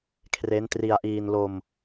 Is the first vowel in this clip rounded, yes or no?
no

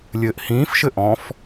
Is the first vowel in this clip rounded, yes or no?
no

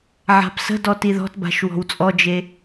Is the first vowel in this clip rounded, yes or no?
no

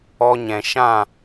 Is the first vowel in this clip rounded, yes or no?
yes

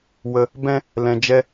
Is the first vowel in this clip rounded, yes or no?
no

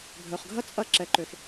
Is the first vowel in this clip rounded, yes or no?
yes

